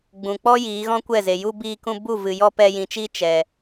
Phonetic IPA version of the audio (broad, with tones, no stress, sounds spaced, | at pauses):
ɡ͡b ũ˨ k͡p ɔ˦ j iː˨˦ ɣ ɔ̃˦ kʷ ɛ˦˨ z e˨ j u˧ b iː˧ k ũ˧ b u˦˨ v ɨ˨ j ɔ˦ p ɛ˧ j ĩ˨ t͡ʃ iː˦ t͡ʃ ɛ˨